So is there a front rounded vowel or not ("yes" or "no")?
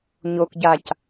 no